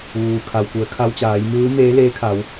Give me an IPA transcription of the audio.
ʋ uː˩ kʰ a˩ w k u˩˧ ə̯ kʰ a˧ w t͡ɕ aː˩˧ j m ɯː˧˥ m eː˧˥ l eː˧˥ kʰ a˩˧ w

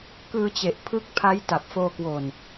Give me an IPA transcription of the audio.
k ɯː˧ t͡ɕ e˨˩ ʔ pʰ ɯ˦˥ k̚ pʰ a˦˥ j t a˨˩ p̚ f oː˧ k w o˨˩ n

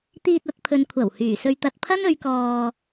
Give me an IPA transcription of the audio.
t̪ iː˧ t̚ ɐ˧ t̚ pʰ ɵ˨ n kʷʰ ɐ˨˩ w h yː˨˩ s ɵ˧ ɥ t̪ ɐ˧ t̚ pʰ ɐ˥ n ɵ˨˧ ɥ k ɔː˧

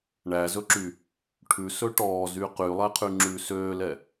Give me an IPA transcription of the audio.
ɳ æ z ɵ ǁ y | ʈʰ ʉ s ɵ ʈ ɔː z y q y lˠ ɛ qʰ y ŋ͡ǁ ʉː s øː l ɛ

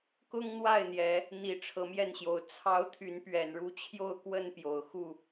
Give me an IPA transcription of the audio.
k ʊ˦ ŋ n̪ w a˥˨ ɪ̯ n̪ j ɛ˨˦ | n̪ i˨˦ ʈ͡ʂʰ ɤ˨˦ m j ɛ˥˨ n ɕ j o˨˦ ʊ̯ t͡sʰ ɑ˦ ʊ̯ t̪ʰ y˨˦ n p ɥ ɛ˨˩ n ɻ u˥˨ t͡ɕʰ j o˥˨ ʊ̯ k w ə˥˨ n p j o˨˩ ʊ̯ x u˥˨

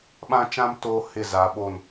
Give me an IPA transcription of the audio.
ɓ ã˦ t͡ʃ ã˦ m t oː˦ h ɪ˦˨ z a˨˦ ɓ o˦˨ n

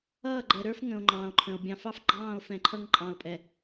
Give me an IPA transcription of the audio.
ʌː˦˨ ɡ͡ǃ ɛ˨ ɾ ə˞˦ f ŋ ə̃˨ o̯ ŋ͡ǃ ɑ̃ː˨ o̯ ǃʰ ə̃˨ o̯ bʲ ɑ̃˨ f ɑ˦ f ɡ͡ǃ ɑ̃ː˦˨ o̯ f ɛ̃˨ ǃʰ ʌ˦ ŋ ǃʼ ɑ̃˨ o̯ pʼ ɛ˨

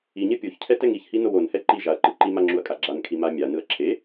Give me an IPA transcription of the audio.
i ɲ ɛ pʲ o ç cʰ ɛ t ɛ ŋ i ç h i n o w o n h ɛ ǃ i ʒ a ɐ̯ ǃ ɯ ǃ i m a ŋ͡ǁ u ɐ̯ kʼ a ɡ͡ǁ a n kʰ i m a mʲ a n ɯ ɐ̯ ǁʰ e

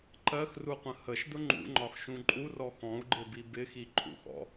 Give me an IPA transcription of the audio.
ǃ ɜ x r u qʷ ə̃ h ə ʃ d ʊ ŋ͡ǃ ṵ ŋ͡ǃ ɒ x ʃ ũ ǃʼ u r ɔ x ɔ̃ u̯ ɡ͡ǃ ɪ b i b ɪ x i ǃʼ ṵ x ɔ̰

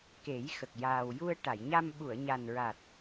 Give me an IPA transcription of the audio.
k e˨˩˦ j x ə˨˩ k̚ j aː˨˩ w j u˧ ə̯ ʈ a˨˩˨ j ɲ a˧ m ɓ u˨˩˨ ə̯ ɲ a˨˩ n ɹ a˨˩ t̚

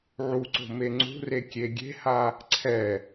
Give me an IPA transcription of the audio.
ʕ u ǀ o̤ m e ŋ͡ǀ ṳ r e kʲ e ɡʲ e̤ h a | ǀʰ ɛ

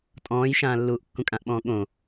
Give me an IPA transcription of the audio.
tʼ ɔ̃ː j ʃ ãː lː uː ʔ kː ũ kʼ ã ʔ ɓ ɔ̃ː ɠ õ

